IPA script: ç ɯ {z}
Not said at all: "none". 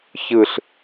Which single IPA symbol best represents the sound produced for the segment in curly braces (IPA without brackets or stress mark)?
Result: ɬ